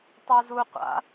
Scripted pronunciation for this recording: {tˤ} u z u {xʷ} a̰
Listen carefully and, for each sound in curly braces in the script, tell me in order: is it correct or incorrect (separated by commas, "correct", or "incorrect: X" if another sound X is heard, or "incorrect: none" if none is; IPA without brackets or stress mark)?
correct, incorrect: qʷ